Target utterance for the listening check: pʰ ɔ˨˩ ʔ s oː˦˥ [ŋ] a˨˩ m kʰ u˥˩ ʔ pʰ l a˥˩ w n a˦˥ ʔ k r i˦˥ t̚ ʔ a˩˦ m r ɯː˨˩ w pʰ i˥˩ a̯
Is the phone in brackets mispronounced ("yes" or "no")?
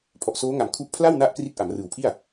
no